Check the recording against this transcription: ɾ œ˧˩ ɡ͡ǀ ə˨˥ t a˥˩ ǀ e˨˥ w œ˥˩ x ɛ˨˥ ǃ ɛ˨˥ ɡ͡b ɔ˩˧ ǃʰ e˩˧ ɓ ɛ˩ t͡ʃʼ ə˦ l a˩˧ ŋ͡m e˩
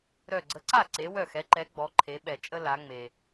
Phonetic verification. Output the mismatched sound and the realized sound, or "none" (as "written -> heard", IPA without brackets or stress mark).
t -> ǀ